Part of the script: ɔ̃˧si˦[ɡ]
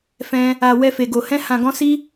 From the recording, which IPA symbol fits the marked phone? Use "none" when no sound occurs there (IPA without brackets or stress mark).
none